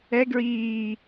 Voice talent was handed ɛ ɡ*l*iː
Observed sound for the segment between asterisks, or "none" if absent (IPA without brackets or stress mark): ɹ